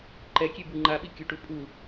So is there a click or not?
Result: yes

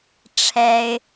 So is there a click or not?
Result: no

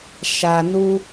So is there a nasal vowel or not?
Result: no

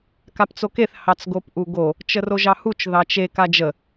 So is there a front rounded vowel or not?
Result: no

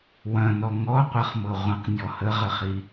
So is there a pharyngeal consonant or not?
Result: no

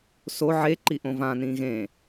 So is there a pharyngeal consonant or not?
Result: yes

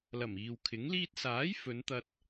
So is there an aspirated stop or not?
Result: yes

